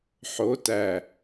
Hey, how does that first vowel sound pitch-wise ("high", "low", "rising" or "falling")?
rising